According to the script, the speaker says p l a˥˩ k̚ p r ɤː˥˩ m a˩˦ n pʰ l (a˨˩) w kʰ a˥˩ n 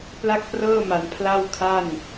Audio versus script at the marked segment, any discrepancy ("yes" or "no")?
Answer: yes